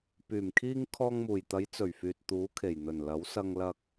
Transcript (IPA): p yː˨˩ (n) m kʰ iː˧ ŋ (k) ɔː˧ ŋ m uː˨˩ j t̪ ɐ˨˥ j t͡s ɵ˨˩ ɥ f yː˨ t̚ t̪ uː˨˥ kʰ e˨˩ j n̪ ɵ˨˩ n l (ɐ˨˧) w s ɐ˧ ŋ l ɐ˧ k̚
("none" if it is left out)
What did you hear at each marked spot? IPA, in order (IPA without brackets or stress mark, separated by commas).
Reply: none, kʰ, ɐ˨˥